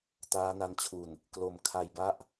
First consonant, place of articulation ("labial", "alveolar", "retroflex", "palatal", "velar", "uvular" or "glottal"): alveolar